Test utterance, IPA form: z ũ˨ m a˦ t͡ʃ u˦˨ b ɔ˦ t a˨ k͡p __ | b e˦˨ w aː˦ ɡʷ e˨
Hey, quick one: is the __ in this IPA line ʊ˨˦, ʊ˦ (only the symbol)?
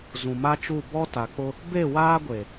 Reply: ʊ˦